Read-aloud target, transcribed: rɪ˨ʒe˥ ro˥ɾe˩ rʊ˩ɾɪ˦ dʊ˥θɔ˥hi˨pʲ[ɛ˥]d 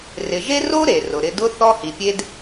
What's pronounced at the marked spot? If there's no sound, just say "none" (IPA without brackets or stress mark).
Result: e˥